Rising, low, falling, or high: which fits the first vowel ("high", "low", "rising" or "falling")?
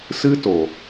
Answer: high